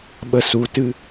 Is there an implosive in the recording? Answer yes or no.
yes